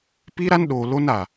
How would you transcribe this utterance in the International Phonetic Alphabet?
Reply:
pi˦ɾa˦nɗo˨ lo˦na˨

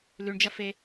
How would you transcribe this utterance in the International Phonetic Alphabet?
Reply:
lʉɳd͡ʒɐfe

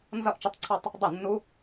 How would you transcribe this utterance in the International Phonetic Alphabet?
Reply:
nzʌ˥˧ʔt͡ʃə˦˥tˤǀʰɑ˥˧tˤ | dˤə˥˩nːu˦˥

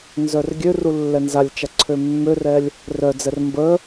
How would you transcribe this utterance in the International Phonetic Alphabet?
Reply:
nzœrɡʲøru lːɛnzalʲt͡ʃa ǀʰømːørɛlʲ | rœd͡zɛr mbə

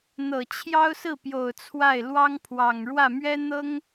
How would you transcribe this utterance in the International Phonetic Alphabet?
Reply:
n̪ɤ˨˩t͡ɕʰjɑ˥ʊ̯sɹ̩˥˩pjo˨˩ʊ̯ t͡sʰwa˥˩ɪ̯ lwɑ˥ŋpʰwɑ˨˩ŋ ɻwä˥˩ mɥɛ˥n̪ɤ˥ŋ

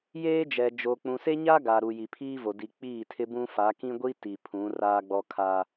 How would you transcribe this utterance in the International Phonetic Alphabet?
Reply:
jeː˦d͡ʒɛ˨d͡ʒo˨ k͡pũ˨se˦ɲa˦ ɡa˨ɾu˨ ji˨pʰiː˦vo˨ di˨k͡piː˦˨ tʰɪ˦bũ˦ fa˨˦kĩ˦ɡʷi˦ ti˨pʰũ˨˦ raː˦ɡ͡bɔ˦kʰa˦

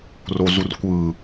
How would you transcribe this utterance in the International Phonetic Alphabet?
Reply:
rozurkʷɯ

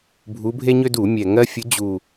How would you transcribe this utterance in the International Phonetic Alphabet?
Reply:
bʱu˨˦bʱe˦ɲø˦ du˧˩˧mʲɛ˨˩ŋɜ˦ fʲʊ˨˦d͡ʑu˨˩

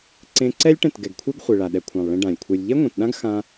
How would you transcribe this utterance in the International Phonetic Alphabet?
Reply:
ǀẽ˧ǀɛ˦lʲ ʈɛ̃˦˨tɡɛ˨ɡkʷʰe˦ɡχʷe˨ ɭa˨ɗɛ˧kʷʰã˨lˠ ɭẽ˧ɖã˨lʲkʷʰe˧lʲ ʎɛ˦ŋʷɛ̃˨tɗã˦ɡ xã˦

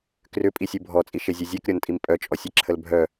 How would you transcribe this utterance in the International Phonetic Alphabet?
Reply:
krʏpʼisʲu bʱɔt͡sʼiʃezʲe zʲekɾʲɔntʼim pʼœt͡ʃʼɔsʲeǁʰəl bʱœ

